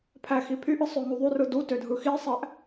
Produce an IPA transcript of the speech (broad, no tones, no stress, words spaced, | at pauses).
pʰæxipʰyʔɯ sˤøŋuðˤyrɯ dutø dʱɯxisˤæʔ